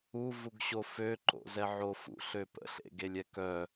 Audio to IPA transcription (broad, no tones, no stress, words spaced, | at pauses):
uvuɡɕo føǃo̰zɛʕo fṵɬø pə̰ɬḛɡelʲɛ kœ